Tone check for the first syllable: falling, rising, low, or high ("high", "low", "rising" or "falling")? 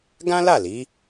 high